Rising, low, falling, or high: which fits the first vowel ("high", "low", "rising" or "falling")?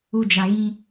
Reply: low